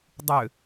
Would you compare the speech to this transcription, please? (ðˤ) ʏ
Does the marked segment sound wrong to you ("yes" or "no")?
yes